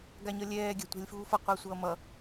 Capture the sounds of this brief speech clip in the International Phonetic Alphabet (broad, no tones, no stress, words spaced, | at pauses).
ɡaɲʌlʲɛː ɡʲa̤tʷa̤lʲfuːfʌ qʷasʷʌːmʌ